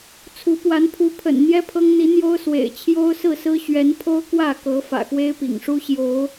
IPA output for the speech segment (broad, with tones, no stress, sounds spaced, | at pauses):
t͡sʰ u˨˦ p w a˨˦ n pʰ u˨˦ pʰ ə̰˨˩ n n̪ j ɛ˦ pʰ ɤ˦ ŋ n̪ i˨˦ n̪ j o˦ ʊ̯ s w ḛ˨˩ ɪ̯ t͡ɕʰ j o˦ ʊ̯ s ɹ̩˥˨ s ɹ̩˦ ɕ ɥ ɛ˨˦ n pʰ o˦ ʊ̯ k w ä˥˨ k ɤ˨˦ f ä̰˨˩ x w e˦ ɪ̯ p ḭ˨˩ ŋ ʂ u˦ ɕ j o˨˦ ʊ̯